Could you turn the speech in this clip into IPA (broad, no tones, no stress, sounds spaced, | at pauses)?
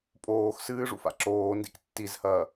pʼ oː x s ɨː ʐ ṵ f a̰ ǁ oː n d ḭ k tː i z h ɐː